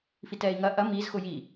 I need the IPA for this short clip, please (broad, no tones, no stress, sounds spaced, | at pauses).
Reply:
f i t ɛː i̯ ŋ ɐ ʔ ɐ m i z x ʊ j i